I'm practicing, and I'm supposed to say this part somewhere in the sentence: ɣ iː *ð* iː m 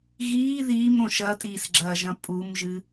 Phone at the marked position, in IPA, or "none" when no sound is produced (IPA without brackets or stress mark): ð